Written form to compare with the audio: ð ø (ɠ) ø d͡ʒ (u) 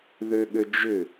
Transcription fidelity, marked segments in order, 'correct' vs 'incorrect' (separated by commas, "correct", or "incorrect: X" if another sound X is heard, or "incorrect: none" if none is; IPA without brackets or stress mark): correct, incorrect: ʏ